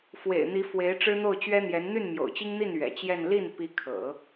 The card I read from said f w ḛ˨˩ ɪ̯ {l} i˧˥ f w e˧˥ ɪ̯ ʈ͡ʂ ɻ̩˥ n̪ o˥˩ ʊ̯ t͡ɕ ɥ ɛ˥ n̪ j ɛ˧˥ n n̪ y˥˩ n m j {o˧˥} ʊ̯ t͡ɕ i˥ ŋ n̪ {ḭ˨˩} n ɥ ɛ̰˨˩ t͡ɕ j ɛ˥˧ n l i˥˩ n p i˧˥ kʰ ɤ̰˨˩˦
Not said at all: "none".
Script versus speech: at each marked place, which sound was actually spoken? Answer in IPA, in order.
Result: n̪, o̰˨˩, i˥˩

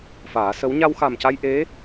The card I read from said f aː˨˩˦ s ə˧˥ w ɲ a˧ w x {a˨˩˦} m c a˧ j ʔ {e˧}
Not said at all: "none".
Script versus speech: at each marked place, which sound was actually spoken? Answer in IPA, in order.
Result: a˨˩, e˧˥

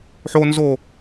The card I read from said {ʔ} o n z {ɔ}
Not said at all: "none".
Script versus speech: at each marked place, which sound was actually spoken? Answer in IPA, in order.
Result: ħ, o

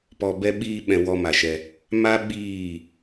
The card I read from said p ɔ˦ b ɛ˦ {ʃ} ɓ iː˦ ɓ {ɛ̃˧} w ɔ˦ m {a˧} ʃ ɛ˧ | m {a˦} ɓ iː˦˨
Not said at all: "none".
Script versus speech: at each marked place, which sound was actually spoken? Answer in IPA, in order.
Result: none, ɛ̃˧, a˧, a˦

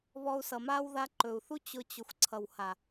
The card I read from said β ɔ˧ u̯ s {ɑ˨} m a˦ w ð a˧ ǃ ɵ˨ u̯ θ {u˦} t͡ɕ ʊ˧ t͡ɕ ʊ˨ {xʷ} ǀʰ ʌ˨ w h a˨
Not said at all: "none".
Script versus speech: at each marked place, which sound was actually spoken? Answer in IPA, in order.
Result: ʌ˨, u˦, xʷ

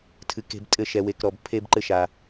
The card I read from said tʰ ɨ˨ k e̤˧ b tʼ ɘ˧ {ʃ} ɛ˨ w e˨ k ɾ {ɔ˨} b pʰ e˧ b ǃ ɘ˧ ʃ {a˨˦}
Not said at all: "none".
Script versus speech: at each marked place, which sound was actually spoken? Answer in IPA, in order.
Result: ʃ, ɔ˨, a˨

